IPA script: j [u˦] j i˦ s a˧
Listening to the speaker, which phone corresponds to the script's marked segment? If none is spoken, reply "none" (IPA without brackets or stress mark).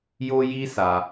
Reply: o˦